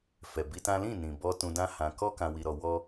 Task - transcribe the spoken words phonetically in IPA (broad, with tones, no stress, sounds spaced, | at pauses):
f ɛ˨ b i˧ t ã˦ l ĩ˦˨ n ĩ˨ b ɔ˧ t ũ˧ d ã˦ h ã˧ k ɔ˦ k ã˧ w i˦ ɾ ɔ˦ w ɔ˦